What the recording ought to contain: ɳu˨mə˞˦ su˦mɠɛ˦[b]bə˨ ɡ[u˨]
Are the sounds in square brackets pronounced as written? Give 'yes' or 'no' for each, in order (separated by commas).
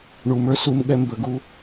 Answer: no, no